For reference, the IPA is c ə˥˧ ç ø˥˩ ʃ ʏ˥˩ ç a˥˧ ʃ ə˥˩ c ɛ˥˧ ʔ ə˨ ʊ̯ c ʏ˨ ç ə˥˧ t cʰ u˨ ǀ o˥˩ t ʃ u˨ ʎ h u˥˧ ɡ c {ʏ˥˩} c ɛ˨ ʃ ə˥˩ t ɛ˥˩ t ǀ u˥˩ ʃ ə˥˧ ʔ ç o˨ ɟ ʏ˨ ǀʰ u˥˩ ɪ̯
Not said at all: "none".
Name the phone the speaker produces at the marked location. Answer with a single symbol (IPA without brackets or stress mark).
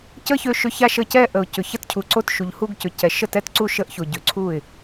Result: ʏ˨